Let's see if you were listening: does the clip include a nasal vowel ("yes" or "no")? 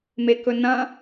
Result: yes